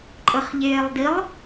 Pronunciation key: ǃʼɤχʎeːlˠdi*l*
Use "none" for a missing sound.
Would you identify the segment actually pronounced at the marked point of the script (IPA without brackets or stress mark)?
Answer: lˠ